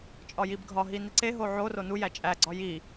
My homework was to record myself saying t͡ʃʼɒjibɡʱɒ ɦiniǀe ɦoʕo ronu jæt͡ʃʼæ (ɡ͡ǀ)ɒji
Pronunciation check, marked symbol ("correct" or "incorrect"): correct